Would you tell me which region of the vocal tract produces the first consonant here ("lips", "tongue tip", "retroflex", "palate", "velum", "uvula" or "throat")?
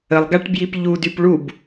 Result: tongue tip